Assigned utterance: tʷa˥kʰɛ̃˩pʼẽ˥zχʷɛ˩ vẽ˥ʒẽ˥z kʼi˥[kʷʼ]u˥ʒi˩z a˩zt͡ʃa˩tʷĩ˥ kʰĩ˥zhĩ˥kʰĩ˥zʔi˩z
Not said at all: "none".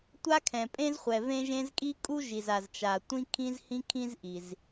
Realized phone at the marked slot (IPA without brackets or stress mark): kʼ